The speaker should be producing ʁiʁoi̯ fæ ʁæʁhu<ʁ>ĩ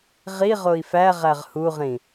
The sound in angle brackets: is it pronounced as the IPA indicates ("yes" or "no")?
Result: yes